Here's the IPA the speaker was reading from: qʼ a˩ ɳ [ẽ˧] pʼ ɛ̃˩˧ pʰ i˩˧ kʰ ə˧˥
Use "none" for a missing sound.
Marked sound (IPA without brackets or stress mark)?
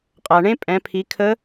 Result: ẽ˥